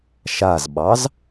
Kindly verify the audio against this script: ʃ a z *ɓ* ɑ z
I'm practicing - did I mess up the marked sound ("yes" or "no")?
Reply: no